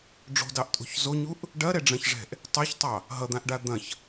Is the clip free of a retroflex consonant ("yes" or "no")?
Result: no